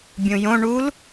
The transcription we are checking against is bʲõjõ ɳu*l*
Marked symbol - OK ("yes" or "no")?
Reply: yes